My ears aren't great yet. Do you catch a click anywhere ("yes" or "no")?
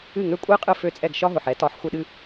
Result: no